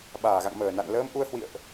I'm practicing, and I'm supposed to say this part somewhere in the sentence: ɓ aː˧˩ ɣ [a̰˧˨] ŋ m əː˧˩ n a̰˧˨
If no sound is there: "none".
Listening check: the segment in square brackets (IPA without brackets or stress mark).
a̰˧˨